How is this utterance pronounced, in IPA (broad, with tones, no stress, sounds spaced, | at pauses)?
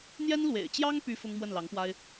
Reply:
n̪ j ɛ˥ n l w ḛ˨˩ ɪ̯ t͡ɕ j ɑ˥ ŋ p y˥ f ʊ˥ ŋ m w ə˥˩ n l ɑ˧˥ ŋ p w a˥ ɪ̯